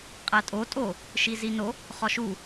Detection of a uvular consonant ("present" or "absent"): present